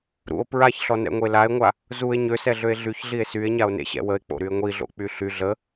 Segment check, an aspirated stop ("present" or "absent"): absent